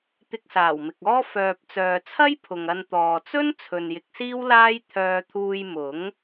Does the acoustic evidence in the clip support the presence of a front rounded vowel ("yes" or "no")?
yes